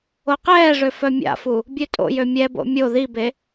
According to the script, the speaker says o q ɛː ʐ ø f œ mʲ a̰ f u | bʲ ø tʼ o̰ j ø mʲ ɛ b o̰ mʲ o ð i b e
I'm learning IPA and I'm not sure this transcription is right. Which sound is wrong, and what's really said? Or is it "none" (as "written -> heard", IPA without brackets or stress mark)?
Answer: none